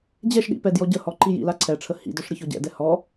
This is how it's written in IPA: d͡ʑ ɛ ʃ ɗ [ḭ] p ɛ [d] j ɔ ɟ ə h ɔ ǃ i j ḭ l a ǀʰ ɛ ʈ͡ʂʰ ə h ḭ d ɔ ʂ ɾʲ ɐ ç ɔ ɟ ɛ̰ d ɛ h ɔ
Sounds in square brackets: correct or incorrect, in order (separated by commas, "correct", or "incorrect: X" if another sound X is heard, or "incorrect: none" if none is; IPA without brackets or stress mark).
correct, correct